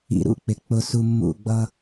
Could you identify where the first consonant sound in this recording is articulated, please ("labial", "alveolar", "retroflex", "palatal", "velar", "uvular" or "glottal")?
alveolar